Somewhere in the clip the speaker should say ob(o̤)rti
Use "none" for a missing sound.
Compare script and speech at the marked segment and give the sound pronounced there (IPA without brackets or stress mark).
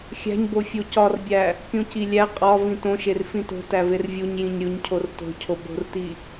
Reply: o̤